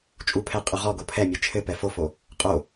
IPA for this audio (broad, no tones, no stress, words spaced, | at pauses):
t͡ʃʼupʰɛ qʼʉʁɔɡo pʰɛmʲe t͡ʃʰɘ pɛfofo | qʼo